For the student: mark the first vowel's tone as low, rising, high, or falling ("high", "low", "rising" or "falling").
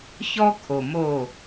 high